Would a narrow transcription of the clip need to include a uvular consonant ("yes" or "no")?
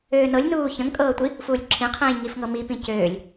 yes